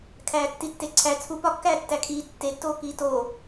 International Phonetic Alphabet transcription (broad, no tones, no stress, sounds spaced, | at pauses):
kʰ æː tː i tː e ǀʰ æ t͡sʰ u p ɒ kː æː tː æ kʰ iː tː e tː oː k iː t o